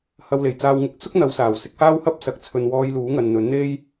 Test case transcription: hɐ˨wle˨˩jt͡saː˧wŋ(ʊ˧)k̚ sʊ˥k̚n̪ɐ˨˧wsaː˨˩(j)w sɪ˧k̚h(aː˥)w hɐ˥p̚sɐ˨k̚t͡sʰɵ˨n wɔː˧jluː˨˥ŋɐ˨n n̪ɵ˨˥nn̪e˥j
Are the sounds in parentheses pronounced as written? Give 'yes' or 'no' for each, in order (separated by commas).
yes, no, yes